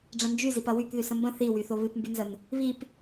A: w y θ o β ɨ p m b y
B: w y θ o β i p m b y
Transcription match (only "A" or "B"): A